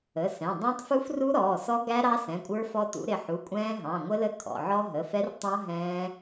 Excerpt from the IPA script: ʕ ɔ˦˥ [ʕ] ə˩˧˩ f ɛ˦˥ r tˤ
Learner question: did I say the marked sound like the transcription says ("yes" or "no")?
no